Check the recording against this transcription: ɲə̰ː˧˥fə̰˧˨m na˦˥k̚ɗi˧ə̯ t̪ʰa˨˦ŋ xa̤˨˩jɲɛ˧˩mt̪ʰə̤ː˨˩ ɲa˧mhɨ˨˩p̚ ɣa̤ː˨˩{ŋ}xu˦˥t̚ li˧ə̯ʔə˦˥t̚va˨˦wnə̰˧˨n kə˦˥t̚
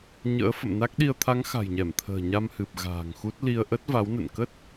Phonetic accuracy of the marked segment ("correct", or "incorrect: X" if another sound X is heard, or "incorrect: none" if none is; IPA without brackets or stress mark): correct